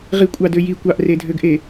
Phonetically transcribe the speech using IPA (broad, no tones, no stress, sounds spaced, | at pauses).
ʁ i kʷʼ ɑ d ø j i kʷ ɑ ʔ r e dʱ ø ɡ ʔ e